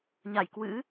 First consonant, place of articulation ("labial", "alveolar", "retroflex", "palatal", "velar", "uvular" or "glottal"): palatal